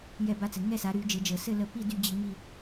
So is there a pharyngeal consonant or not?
no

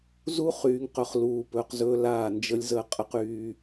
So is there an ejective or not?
yes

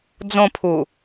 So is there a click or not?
no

